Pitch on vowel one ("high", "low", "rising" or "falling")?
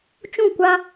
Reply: falling